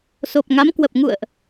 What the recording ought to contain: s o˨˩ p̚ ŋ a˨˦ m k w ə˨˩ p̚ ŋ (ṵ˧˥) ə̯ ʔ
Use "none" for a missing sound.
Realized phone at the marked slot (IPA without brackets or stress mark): ṵ˧˨